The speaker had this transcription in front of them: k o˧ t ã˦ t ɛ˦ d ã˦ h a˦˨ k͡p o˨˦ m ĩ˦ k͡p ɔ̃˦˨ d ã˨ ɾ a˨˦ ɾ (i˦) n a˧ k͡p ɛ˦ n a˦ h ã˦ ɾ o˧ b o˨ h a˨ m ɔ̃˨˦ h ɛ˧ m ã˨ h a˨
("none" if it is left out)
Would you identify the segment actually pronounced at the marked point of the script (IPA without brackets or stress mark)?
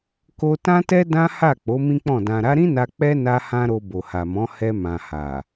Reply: ĩ˦